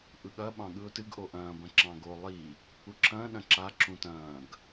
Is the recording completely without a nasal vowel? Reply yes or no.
no